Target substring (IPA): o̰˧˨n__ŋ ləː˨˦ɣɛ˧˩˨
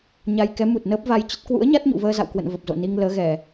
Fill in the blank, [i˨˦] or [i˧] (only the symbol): i˧